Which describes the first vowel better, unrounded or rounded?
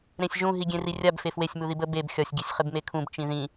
unrounded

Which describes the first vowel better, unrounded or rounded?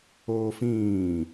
rounded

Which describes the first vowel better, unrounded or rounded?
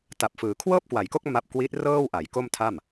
unrounded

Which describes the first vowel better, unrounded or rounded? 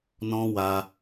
rounded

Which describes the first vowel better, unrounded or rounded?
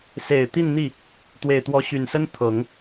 unrounded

